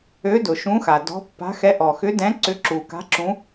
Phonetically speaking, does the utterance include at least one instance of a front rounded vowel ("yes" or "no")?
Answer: yes